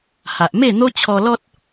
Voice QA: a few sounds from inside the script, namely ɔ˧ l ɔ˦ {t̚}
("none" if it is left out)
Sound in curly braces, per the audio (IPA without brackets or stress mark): t̚